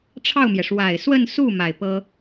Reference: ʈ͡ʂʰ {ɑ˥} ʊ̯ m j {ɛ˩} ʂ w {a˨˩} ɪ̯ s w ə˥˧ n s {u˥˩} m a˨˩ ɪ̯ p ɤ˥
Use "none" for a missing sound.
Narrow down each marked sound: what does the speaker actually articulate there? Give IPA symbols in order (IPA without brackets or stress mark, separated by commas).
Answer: ɑ˥˩, ɛ˩, a˨˩, u˥˩